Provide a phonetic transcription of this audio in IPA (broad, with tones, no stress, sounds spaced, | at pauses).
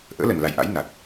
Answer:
ʔ ə̰ː˧˥ l ə˨˩ n l a˨˩ j ʔ a̰˧˥ j n a˨˩ t̚